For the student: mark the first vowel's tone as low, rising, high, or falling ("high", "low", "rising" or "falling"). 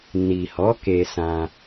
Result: low